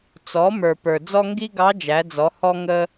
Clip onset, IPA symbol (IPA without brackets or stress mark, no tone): t͡s